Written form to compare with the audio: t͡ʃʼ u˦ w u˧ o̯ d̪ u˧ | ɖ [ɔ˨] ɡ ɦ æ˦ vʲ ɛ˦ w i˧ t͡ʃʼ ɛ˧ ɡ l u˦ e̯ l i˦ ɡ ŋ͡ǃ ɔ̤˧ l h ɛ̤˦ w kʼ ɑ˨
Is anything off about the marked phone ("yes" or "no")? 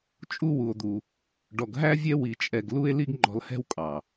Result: yes